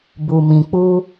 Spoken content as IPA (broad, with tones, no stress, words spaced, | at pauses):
bu˨mĩ˨ k͡pu˧